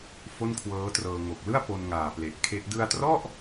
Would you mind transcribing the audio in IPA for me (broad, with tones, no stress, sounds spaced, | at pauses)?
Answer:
f o˥˩ n kʰ w ɤː˦˥ t r ɤː˧ ŋ o˨˩ k̚ l ɯ˥˩ a̯ p o˧ n ŋ aː˨˩ p l e˨˩ ʔ kʰ e˦˥ ʔ d ɯ˧ a̯ t r ɔ˥˩ ʔ